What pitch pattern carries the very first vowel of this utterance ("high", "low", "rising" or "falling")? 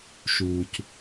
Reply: low